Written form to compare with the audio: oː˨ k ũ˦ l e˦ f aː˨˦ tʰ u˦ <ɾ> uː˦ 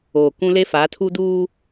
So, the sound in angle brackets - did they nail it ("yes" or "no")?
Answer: no